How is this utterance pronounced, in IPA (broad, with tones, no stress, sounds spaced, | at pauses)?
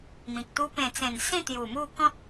m ĩ˨ k̚ t̪ u˦ p ẽ˨˩ t͡s ẽ˨˩ n s ĩ˥˧ t̪ j u˨˩ m u˥˧ k ɔ̃˦ t̚